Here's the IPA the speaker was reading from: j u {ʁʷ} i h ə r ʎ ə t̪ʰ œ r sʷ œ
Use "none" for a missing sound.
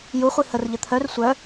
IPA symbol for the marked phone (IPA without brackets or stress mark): χʷ